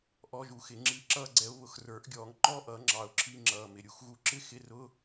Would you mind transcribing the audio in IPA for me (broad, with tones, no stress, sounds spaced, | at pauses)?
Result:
ʔ ɔ˧˥˧ ʒ u˨˩˦ x ɪ˨˩˦ ŋ͡ǁ i˧˥˧ ǁ ʌː˥˧ ɡ͡ǀ ɛ˨˦ ʊ̯ β ʊ˨˩˦ x r ə˞˨˩˦ ʔ ɡʲ ɔː˨˩˦ ŋ ŋ͡ǃ ɔː˥˧ ʔ ʌː˨˩˦ ŋ͡ǁ ɑ˩˧˩ ʊ̯ ǁʰ i˧˥˧ ŋ͡ǁ ʌː˩˧˩ m ɪ˩˧˩ ɾʲ u˨˦ x ɣ u˨˦ ǁ ɪ˥˧ x ɪ˧˥˧ r ʊ˧˥˧